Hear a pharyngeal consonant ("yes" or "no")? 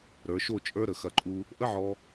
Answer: yes